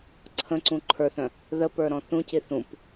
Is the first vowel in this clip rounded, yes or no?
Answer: no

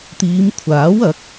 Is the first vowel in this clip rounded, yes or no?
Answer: no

